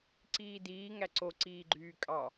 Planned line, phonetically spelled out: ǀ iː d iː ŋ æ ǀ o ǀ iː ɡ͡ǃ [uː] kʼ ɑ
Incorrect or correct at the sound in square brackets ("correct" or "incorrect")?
incorrect